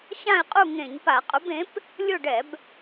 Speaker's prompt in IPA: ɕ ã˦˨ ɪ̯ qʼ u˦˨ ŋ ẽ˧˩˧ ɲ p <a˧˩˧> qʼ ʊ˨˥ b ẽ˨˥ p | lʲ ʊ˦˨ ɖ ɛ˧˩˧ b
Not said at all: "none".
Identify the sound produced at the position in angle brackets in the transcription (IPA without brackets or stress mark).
a˧˩˧